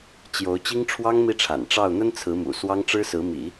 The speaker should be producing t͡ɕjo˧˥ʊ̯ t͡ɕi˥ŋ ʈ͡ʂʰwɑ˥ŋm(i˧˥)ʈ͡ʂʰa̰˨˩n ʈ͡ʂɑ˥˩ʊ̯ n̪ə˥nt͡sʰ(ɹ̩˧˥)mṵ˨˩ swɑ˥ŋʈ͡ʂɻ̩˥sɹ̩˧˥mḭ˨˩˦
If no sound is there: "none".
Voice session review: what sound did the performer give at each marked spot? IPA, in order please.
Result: i˥˩, ɹ̩˧˥

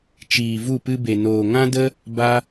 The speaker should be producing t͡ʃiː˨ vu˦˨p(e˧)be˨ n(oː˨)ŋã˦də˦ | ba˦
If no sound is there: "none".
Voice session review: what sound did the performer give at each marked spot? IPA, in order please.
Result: ɨ˧, oː˨

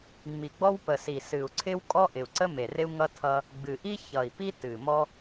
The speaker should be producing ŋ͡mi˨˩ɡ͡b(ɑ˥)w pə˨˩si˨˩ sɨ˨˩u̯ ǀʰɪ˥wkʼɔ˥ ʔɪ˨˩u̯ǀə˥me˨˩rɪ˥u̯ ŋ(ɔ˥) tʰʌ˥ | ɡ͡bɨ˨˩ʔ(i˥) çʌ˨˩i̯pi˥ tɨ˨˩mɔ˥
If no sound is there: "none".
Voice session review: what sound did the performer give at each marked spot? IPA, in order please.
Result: ɔ˥, ʌ˥, i˥

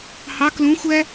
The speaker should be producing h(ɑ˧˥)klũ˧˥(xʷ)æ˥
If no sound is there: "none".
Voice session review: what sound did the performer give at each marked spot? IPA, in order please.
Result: ɑ˧˥, xʷ

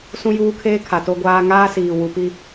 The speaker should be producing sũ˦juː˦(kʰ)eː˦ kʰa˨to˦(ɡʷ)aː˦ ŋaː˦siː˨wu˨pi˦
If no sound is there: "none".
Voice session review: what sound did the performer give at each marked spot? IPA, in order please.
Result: kʰ, ɡʷ

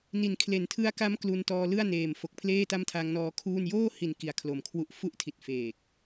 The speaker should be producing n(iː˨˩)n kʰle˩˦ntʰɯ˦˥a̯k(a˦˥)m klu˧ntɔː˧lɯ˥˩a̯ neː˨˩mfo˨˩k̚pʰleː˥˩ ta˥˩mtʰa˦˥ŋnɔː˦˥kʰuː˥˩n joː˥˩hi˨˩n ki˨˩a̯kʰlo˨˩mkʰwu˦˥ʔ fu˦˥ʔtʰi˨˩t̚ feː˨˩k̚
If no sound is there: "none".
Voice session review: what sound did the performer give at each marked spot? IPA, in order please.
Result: i˨˩, a˦˥

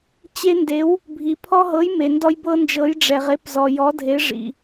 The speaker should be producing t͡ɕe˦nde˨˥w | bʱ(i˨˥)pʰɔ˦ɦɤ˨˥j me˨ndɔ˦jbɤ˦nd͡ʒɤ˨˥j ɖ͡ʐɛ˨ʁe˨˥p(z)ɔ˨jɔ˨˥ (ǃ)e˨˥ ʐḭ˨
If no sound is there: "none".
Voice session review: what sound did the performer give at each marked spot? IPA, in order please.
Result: i˨, z, dʱ

